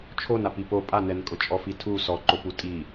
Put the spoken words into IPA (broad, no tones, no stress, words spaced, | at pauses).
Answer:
t͡ʃʰonap ipo pʼanɛnkʼʊ t͡ʃʼɔfitʰu sɔǃopu tʼi